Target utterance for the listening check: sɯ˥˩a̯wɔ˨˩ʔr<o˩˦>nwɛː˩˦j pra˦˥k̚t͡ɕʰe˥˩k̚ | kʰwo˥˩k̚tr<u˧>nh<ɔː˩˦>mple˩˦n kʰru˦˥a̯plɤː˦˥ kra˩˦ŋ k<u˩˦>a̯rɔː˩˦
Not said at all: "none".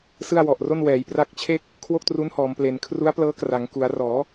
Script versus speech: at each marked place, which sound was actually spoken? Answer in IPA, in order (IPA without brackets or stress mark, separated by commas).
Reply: o˥˩, u˦˥, ɔː˩˦, u˩˦